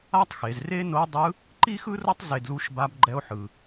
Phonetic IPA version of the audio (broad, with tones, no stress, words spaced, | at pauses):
a˥tˤxe˩˧z re˥ no˧˥dˤɯ˧˥ | ǃi˥xɯ˥ro˥tˤ ze˧dlu˧˥ʃba˧˥bɡ͡ǃɛ˧˥o̯ ħɯ˩